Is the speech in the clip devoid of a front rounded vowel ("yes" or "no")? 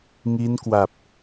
yes